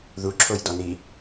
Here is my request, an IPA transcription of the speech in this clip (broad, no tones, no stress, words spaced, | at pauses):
ðuǁʰojdɔni